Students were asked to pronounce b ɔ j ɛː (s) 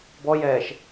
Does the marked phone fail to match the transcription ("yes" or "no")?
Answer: yes